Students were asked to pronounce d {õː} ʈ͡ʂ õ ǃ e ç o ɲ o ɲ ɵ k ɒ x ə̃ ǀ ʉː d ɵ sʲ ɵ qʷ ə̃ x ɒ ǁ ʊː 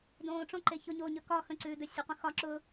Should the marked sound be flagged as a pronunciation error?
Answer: no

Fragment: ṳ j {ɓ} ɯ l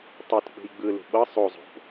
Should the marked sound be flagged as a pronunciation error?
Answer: yes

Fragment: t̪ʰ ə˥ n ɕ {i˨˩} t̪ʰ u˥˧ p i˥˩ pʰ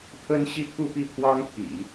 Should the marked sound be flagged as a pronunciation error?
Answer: yes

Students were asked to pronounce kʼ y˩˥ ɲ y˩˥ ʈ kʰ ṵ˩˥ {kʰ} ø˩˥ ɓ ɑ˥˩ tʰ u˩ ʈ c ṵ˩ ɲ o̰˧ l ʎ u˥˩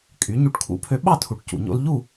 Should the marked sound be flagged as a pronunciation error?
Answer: yes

